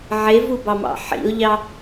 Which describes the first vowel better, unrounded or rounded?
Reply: unrounded